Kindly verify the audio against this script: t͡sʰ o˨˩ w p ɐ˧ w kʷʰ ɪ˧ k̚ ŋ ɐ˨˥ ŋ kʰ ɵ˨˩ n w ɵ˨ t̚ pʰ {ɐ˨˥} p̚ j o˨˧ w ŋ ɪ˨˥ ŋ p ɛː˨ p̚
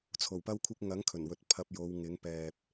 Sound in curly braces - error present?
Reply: yes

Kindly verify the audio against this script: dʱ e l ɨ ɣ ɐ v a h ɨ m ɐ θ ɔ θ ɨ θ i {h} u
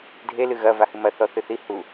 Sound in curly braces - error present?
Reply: no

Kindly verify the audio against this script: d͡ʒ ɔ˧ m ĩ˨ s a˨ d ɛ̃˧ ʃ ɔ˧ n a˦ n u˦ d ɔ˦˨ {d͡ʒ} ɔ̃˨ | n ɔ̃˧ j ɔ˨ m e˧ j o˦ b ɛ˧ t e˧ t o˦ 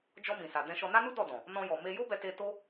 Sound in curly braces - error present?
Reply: yes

